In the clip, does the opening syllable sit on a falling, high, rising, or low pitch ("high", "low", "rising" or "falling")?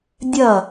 falling